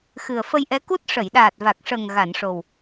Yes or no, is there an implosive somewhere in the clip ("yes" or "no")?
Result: yes